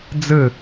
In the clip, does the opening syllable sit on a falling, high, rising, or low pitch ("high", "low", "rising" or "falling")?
falling